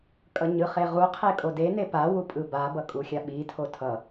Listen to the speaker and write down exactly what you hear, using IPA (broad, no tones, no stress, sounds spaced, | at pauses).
kʼ ʌ ɲ ɯ χ e ʁ u qʰ e kʼ o d e n e p a w u pʼ ɯ b a b ʌ kʼ u xʲ a ɓ i tʰ o tʰ ʌ